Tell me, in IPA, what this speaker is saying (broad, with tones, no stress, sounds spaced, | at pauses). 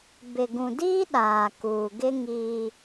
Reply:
b ɪ˨ ɡ ũ˨ d iː˦ ɗ aː˨ k uː˨ ɡ ɪ˦ ŋ iː˦